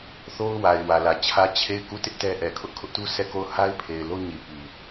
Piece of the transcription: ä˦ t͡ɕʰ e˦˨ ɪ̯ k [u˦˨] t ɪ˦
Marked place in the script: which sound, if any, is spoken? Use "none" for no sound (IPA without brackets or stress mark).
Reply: u˦˨